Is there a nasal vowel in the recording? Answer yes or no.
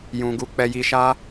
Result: yes